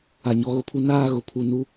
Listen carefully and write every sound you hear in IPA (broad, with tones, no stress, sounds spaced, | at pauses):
a˨ ɲ ɔ˨ ɣ ʊ˦ pʰ u˦ n aː˦ ɣ ʊ˨ pʰ u˨ n u˦